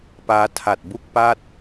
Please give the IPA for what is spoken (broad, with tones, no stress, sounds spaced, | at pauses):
p aː˦˥ tʰ a˨˩ t̚ b u˥˩ k̚ p a˥˩ t̚